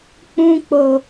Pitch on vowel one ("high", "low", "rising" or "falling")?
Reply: high